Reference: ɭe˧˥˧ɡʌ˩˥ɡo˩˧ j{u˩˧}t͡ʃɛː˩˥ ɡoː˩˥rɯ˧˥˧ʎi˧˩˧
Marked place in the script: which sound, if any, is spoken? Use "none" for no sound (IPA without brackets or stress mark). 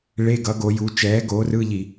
u˩˧